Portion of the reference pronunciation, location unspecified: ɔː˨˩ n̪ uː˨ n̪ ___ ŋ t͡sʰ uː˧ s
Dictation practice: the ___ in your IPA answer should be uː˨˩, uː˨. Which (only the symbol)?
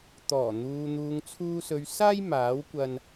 uː˨